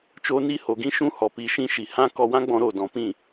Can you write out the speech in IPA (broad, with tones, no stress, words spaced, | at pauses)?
t͡ʃoː˧ni˧ ho˨ɡĩ˦ ʃũ˦hɔ˨pi˧ ʃĩ˧ʃi˨ hã˦ kɔ˧wã˦ ɡ͡bɔ̃˧ɾo˦˨dɔ̃˨pĩ˦˨